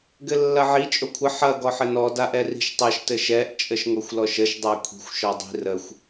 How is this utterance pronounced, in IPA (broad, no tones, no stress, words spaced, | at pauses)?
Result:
ɡɘlːɐʕi t͡ʃʼokʷʰə ħɐ ɡɔħɘnɔ daʔɛri̤ʃtˤɐʃ tɘʃɛʔ t͡ʃʼəʃŋoxʷlɔʃəʃ dˤakʷʰi̤xʷ ʃɔdˤi̤ rəxʷ